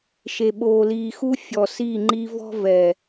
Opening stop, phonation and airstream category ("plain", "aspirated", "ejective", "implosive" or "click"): implosive